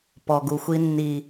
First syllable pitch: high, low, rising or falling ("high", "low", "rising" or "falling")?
low